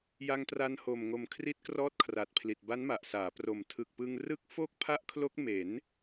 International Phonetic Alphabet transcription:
ja˧ŋtra˧n ho˨˩mŋo˨˩m kʰri˦˥t̚krɔː˦˥t̚kʰra˨˩t̚pʰli˨˩t̚ ba˦˥nma˨˩ʔsaː˩˦pro˨˩m tʰɯ˨˩k̚pɯ˧ŋrɯ˦˥k̚ fo˥˩k̚pʰa˦˥ʔkʰlo˦˥k̚ me˩˦n

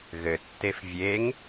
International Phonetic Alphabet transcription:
ɣɘtːef vʲeŋ

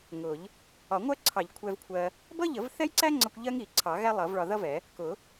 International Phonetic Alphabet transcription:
ŋʊ˨˩˦ʎ | ɒ˨˩˦ ŋʷɜ˥ǀʰɑ˨˩˦ʎ kʷʰɛ˧vkʷʰɜ˧ | bʌ˥ʎə˨˩˦vθɛ˥jǀæ˥ ŋ͡ǀʌ˥kʷ ʎɜ˥ŋi˨˩˦ ǀʰɑ˨˩˦ɣæ˥lˠʌ˨˩˦vɭɒ˧ ðʌ˥vɛ˨˩˦ | kʊ˨˩˦

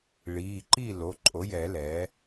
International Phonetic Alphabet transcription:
ɭiː˩˧˩ǃiː˥˨ lo˩˧˩ǃʼo˩˥jɛ˨˩˦ lɛː˩˥

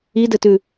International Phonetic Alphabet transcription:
idɘtʉ

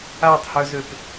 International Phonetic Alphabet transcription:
atˤhœzøp

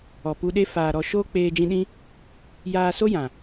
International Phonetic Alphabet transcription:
ɔ˨pu˧ɗe˦ faː˨ ɾɔ˧ ʃoː˦k͡peː˧d͡ʒĩ˧ɗĩ˦ | jaː˧so˦jã˨

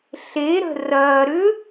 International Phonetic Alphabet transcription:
ɬeɾə̤ rɐː ɾʏ

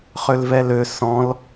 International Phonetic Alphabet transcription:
χølvɛlø sɔ̃l

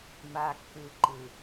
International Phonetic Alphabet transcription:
ma˨kːɯ˨ǃɯ˨

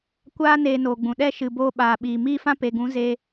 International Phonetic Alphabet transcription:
kʷaː˦ neː˧noː˨ɡ͡bũ˨ ɗɛ˧ʃɨ˨ boː˧ɓaː˨ɓiː˨ miː˦fã˦ pe˨ɡũ˨˦zeː˧

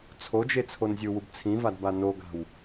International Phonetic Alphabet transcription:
t͡sʰod͡ʒe t͡sʰonzʲɯwub t͡sʰĩvad banoɡa̤w

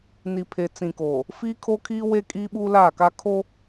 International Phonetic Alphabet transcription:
ni˨pʰe˨t͡sĩ˨koː˨ | fiː˦kʰo˦kʰiː˦ we˦ kʼiː˦ɓuː˦laː˦˨ka˦ kʰo˦

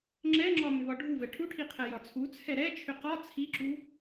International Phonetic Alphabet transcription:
ŋ͡ǁɛŋ͡ǁɒ mʏvɒɖʱuvɛ ʈʰuʈʰi qʰɛjɒt͡sʰut͡sʰɛ ɾɛt͡ʃʰʏ qɒ t͡sʰiǁu

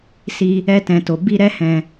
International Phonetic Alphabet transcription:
si˧ | ɛ˦tɛ̃˧to˧ bi˦ ɾɛ˦hɛ̃˧

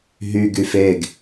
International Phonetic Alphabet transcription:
ɦy ɡyfeɡ

